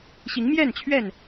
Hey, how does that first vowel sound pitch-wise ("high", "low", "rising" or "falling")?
rising